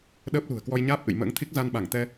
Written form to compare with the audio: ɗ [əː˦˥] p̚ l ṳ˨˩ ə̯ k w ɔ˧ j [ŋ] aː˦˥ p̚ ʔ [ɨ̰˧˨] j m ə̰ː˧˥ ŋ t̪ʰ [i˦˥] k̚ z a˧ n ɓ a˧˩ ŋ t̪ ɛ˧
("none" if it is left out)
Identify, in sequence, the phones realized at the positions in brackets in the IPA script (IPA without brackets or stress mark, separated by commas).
əː˦˥, ɲ, ɨ̰˧˨, i˦˥